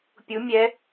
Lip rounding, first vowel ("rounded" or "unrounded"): rounded